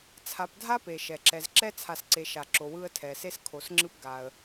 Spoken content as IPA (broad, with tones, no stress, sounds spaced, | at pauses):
t͡sʰ a˨ p dʱ a˥ p e˩ ʃ ɛ˩ ǁ ɛ˨ z ǁ ɛ˥ t͡sʰ a˨ s ǀ e˨ ʃ a˩ ǁ o˨ w ɯ˦ ə̯ tʰ ɛ˨ s e˥ s kʰ o˨ s ŋ͡ǁ ɯ˦ p ɡ a˩ ə̯